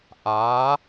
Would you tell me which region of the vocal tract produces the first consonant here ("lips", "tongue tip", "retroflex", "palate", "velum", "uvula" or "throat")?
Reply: throat